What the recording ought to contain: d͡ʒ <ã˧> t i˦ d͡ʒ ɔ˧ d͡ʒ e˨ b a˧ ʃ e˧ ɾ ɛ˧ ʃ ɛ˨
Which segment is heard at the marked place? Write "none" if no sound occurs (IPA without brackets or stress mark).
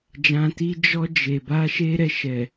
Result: ã˧